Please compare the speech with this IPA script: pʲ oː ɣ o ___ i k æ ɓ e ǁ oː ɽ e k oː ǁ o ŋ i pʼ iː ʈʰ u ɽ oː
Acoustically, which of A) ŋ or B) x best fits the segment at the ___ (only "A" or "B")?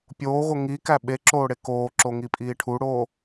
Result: A